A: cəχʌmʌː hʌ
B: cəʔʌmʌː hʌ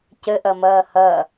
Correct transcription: B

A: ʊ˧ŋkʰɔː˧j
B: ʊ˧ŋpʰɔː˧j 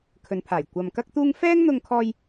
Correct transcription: A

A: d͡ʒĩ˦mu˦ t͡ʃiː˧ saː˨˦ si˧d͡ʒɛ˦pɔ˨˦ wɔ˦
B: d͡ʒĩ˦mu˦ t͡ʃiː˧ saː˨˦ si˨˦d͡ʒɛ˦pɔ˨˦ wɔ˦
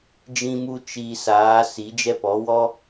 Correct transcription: B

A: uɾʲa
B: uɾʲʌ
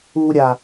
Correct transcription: A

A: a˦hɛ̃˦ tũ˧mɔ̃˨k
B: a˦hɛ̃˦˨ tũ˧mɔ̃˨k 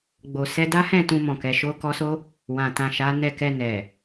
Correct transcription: B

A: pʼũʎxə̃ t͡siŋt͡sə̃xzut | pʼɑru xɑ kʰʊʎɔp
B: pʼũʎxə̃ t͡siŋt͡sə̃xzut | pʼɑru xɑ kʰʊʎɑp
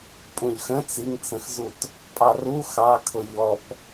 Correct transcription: A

